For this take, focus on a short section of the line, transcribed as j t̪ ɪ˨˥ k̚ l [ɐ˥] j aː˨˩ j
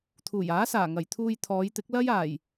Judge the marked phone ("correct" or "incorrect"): correct